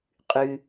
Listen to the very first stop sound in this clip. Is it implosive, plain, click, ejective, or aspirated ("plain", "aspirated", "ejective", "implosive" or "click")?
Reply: ejective